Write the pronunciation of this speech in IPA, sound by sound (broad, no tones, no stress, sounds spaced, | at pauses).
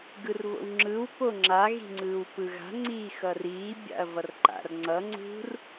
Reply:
ɡ ɯ r β o̰ w ŋ͡ǁ ɯ w p o ŋ͡ǁ a ɣ i̤ ŋ͡ǀ ɯː w p ɯ ɣ a̤ ŋ͡ǀ iː x ʌ r iː bʲ a̰ ɐ̯ v ʌ r ǃ a̰ r ŋ͡ǀ ʌ ŋ͡ǀ ṳ r